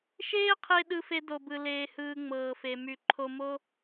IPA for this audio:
ʃ eː˦ qʰ e˧ ɗ ɯ˧ f e˧ d o˨ b ɯ˨ l eː˧ h ɯː˧ ŋ͡m ɤː˨ f e˨ m y˨ ǃʰ o˧ m o˦

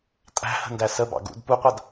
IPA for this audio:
tʼ æ̤ h ə̤ n d æ s ə b ɑ̰ ɡ ṵ d p u qʷ a d

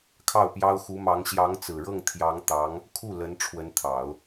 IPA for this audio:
kʰ ɑ˥˩ ʊ̯ p j ɑ˥ ʊ̯ x u˧˥ m ɑ˧˥ ŋ ɕ j ɑ˧˥ ŋ t͡s ɹ̩˨˩ ɻ ɤ˥˩ ŋ t̪ʰ j ɑ˧˥ ŋ t̪ ɑ˧˥ ŋ | kʰ u˥˩ l ə˧˥ n ʈ͡ʂʰ w ə˧˥ n t̪ʰ ɑ˨˩˦ ʊ̯

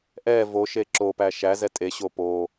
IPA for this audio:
ʔ ɛ v o ʃ e ǁ o p æ ʃ æ z ɛ tʼ e ɕ o p o

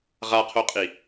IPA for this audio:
ʁ a qʰ o qʼ i

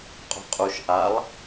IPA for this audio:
qʼ o̤ qʼ u ʃ ʔ a lˠ

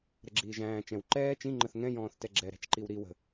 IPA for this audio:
ɾ ə ɡ͡ǁ iː ʒ æ̃ː t͡ʃ ɛ̃ w ǃ ɛː t͡ʃ ĩ ŋ͡ǃ ə θ ŋ ɛ̃ j ɔ̃ː θ t ɛ ɡ͡ǁ ɛ ɾ æ̤ t͡ʃ ǃ i w ɾ i w ə̤

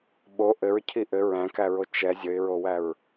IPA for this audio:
ɓ o ʔ ɘ ɹ cʰ i ʔ ɘ ɹ æ̃ k æ ɹ o t͡ʃ ɛ zʲ ə ɪ̯ ɹ o w æ ɹ

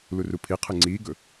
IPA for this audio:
l u r u pʰ i qʰ ɨ ŋ͡ǀ iː ɡ ɵ

